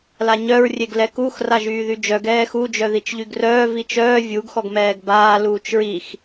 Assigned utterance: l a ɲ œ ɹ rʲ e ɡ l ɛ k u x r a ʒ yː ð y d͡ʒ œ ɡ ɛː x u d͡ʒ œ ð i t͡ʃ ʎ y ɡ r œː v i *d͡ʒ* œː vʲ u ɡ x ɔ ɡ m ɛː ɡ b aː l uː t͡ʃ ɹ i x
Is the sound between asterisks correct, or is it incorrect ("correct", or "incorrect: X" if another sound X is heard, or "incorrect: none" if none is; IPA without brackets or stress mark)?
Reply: incorrect: t͡ʃ